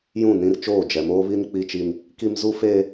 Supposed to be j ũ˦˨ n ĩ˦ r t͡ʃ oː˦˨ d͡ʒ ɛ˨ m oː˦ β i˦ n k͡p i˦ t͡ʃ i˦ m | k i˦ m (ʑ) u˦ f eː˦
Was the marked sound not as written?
yes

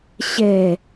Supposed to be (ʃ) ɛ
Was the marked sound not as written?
yes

